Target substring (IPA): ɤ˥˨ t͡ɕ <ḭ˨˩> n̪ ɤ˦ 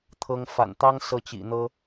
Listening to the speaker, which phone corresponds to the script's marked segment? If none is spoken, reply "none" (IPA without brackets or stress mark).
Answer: ḭ˨˩